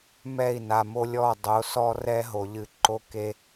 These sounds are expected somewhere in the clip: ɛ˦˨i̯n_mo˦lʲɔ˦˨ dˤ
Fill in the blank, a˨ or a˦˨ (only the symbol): a˨